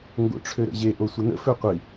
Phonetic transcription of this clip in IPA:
ŋ ɡ o̰ ʈ͡ʂʰ ø ɾ ə̰ ʑ e ʔ o sʷ ə n ə̰ f ø qʷ i

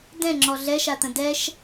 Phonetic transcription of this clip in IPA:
d ɛ̃ ŋ͡ǁ ɔ ɮ ɛ ʃ a t̪ ə̃ d ɛ ʃ

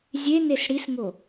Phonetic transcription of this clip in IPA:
zʲ e n e s ɽ i s ŋ o

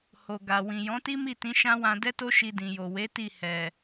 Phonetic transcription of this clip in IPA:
h o˨ ɡ a˨ w ĩ˨ j ɔ̃˨˦ t i˦ m i˦˨ t ĩ˨˦ ʃ ã˦ w ã˧ d ɛ˦ t o˦ ʃ i˧ d ĩ˨ j o˨ w e˨˦ t i˦˨ h ɛ˨

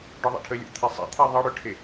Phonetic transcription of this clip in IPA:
ɖ ɔ ðˤ ɛ̰ ʈʰ ə lʲ ɔ̰ t̪ʰ e sˤ ɛ̰ t̪ʰ e ðˤ ʌ ɽ ʏ ʈʰ e

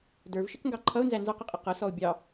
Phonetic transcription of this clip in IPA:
d ə˞ v ʃ ɪ k ŋ ɡ ɑ ǃʰ ʌ ʊ̯ n z æ n z ɑ q ɪ qʼ ɪ q ʌ s ɔ ʊ̯ bʲ ɑ

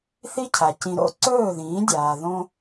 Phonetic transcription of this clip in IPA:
θ i˦ cʰ a˨ c ĩ˧ ɾ o̰˦ ǀ ɵː˦˨ ð ĩː˨˦ dʲ aː˨ ð õ˦

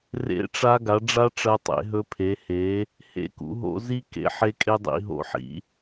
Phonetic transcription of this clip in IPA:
r ḛ˦˥ ʈ͡ʂ a˦˥ ɡ a˨˥ ɖ͡ʐ a˦˥ ʈ͡ʂ ɐ˦˥ tˤ ḛ˨˥ ɦ ɵ˦˥ pʰ e˨˥ h e˨˥ | h ḛ˦˥ k ṵ˨˥ ɦ o̰˦˥ z i˦˥ k ḛ˦˥ ħ e˦˥ kʼ e˦˥ dˤ ḭ˨˥ ɦ o̰˦˥ ħ ḭ˨˥

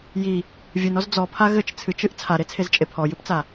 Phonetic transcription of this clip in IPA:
j i | vʲ ɨ n ɔ z d͡z ɔ pʰ a ɣ ɘ t͡ʃ t͡sʰ ɨ t͡ʃ ɨ ʔ t͡sʰ a ɾ e t͡sʰ e z t͡ʃʼ e pʰ ɔ j ɨ p t͡s a

